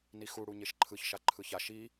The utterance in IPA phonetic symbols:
nixu ɽuɲeʃǃʰɯç ʃaǃʰɯça ʃi

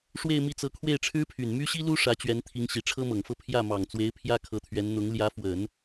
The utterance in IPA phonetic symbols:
ʂwe˥˧ɪ̯mi˥˩t͡sɤ˧˥ kʰwe˥˩ɪ̯ʈ͡ʂʰɻ̩˥pʰy˨˩n my˥ɕi˥lu˥ ʂä˧˥t͡ɕɥɛ˧˥nt̪ʰi˧˥ŋ ɕi˨˩ʈ͡ʂʰɤ˥mɤ˨˩ŋfɤ˥˧ pʰjä˥˩mɑ˨˩ŋt͡swe˧˥ɪ̯ pʰjä˥kʰɤ˧˥t̪ʰɥɛ˧˥n n̪ʊ˧˥ŋ ljä˧˥fwə˨˩˦n

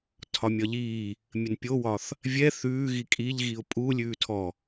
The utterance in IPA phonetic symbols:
tʰɒmʲɒʎiː | mʲənpʲowɒθ | vʲɛ θʉːɣi kʼiʎɣiʊ̯ pʼu lʲʉːtʰɔ

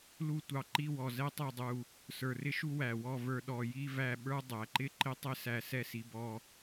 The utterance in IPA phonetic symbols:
lu˥˧ tʷɑ˧˩ǃi˥˧wɔ˧˩ zɛ˥tˤɛ˥˧dˤu˧˩ | sə˞˧˩rɪ˥ʃu˥ wæ˧˩ wɔ˥˧ və˞˧ ɗɔ˧˩ji˥væ˥˧ ɓə˞˥ dˤæ˩˧ǃɪ˥˧ ǃɪ˥tˤɪ˥˧sæ˧˩ sɛ˥si˩˧bɔ˧

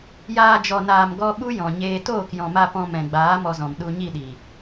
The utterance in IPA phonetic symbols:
jaː˧d͡ʒɔ˨naː˨mɡɔ˧ ɓu˦jɔ̃˨ɲeː˧ toː˦˨kjɔ̃˨ma˧ pɔ̃˧mɛ̃˨ɡ͡baː˨˦ mɔ˧zɔ̃˨m ɗu˧ɲi˦˨ɗi˨

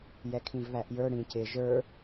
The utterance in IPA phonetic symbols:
jɛkʰĩvβæʔjə˞ ɽĩc ɪ ʒə˞

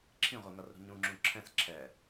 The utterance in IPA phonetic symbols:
ǁʰĩʁʷeŋʌrɾṳ ɲũŋ͡ǁũ ǁʰɛ̃s ǁʰɛ

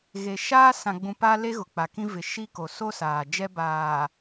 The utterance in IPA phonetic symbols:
ɣe˨ʃaː˦ sã˨ɡ͡bũ˨ pa˦ le˦ɣʊ˨k͡pa˨kĩ˦ vɪ˨ʃi˦ko˨ so˦saː˨ d͡ʒɛ˦baː˨

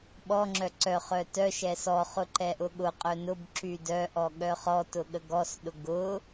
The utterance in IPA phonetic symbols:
ɓɔŋ͡ǁœ ǀœ χœtœʃɛ sɔχʊ ǃɛʔʊɠʊqʼœ nʊb ǁydœʔɔ ɠœχɔtʊ ɠəɡɔsɗʊ ɡʊ

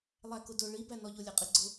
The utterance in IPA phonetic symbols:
lˠækʊdʊ ɭibænɔ ʎʊlʲɛqʼiɡ͡ǀʊ

